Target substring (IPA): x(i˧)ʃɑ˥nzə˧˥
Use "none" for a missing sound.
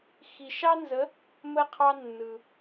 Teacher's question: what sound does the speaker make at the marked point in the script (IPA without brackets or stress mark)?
i˧